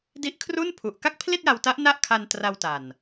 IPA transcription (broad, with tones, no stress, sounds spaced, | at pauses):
d i˦˥ ʔ kʰ r u˥˩ n pʰ u˨˩ ʔ k a˥˩ k̚ pʰ l i˥˩ t̚ j a˧ w t a˦˥ ʔ n a˥˩ ʔ kʰ a˧ n t r a˧ w t a˨˩ n